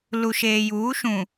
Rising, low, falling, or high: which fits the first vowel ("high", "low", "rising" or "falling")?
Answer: low